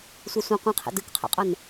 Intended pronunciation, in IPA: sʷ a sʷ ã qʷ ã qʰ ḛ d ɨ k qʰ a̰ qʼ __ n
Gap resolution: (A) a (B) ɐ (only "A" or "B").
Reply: B